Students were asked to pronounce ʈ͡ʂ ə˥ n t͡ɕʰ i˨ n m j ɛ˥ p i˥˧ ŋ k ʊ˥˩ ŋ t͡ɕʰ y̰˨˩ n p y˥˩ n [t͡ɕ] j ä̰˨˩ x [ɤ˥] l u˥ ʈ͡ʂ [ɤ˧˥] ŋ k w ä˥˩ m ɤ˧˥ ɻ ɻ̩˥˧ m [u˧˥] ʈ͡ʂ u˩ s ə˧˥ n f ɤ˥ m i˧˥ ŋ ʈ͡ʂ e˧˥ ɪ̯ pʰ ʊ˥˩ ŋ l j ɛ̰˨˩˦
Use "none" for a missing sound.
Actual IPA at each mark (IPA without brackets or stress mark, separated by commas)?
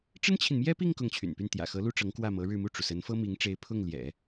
t̪, ɤ˧˥, ɤ˧˥, u˥˩